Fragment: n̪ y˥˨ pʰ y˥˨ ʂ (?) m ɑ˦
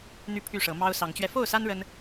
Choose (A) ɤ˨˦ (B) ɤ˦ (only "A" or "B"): A